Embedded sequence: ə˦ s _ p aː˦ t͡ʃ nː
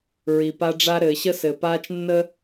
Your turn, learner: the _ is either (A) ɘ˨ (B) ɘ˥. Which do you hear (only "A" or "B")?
A